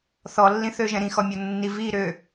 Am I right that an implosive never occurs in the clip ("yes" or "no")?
yes